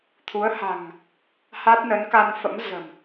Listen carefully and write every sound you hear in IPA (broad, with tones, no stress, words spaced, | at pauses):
t̪ʰu˨˦ə̯ha̤˨˩ŋ | ha˦˥t̚nə˨˦nka˧nfə̰˧˥m zə̤˨˩m